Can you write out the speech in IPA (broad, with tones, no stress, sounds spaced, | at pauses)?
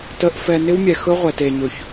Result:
t ə˨ ʔ f ɛ˨ n ɪ˦ w mʲ ɛ˨ x ɵ˦ ʁʷ ɛ˨ t e˨ ɲ ɵ˨ ç